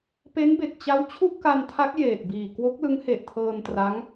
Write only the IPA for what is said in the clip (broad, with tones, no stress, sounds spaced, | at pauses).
p e˦˥ n b e˨˩ k̚ t͡ɕ a˦˥ w t͡ɕʰ u˥˩ ʔ k a˧ n tʰ a˦˥ k̚ j eː˨˩ t̚ b iː˨˩ k w o˦˥ k̚ l ɯ˦˥ ŋ h e˨˩ ʔ tʰ ɤː˧ n t r a˦˥ ŋ